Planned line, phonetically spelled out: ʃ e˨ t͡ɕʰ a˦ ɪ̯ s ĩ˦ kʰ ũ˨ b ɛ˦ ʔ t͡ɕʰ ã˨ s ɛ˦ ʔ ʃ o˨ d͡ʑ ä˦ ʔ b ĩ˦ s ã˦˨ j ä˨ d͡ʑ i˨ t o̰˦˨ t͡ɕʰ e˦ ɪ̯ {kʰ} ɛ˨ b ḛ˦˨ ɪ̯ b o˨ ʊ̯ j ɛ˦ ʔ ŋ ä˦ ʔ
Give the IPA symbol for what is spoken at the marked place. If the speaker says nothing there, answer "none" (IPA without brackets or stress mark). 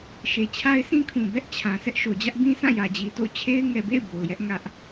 ŋ